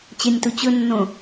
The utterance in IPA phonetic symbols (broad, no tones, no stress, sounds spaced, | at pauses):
t͡ɕ e nʲ t u t͡ɕ ɵ nː õ